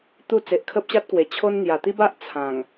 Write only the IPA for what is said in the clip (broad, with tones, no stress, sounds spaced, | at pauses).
t̪ u˥˧ t͡s e˨ ʔ kʰ ə˦ p̚ ɕ a˦ t̚ k w e˨˩ t͡ɕʰ o˦ n n̪ j a˨˩ t̪ i˦ b a˦ ʔ t͡sʰ ã˨˩ ŋ